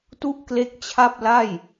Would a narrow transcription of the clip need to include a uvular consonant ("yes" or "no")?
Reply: no